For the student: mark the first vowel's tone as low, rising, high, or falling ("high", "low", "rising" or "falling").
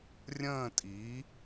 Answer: falling